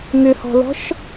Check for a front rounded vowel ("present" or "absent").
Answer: present